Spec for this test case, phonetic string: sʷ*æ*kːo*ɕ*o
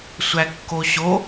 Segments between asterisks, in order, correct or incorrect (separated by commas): correct, correct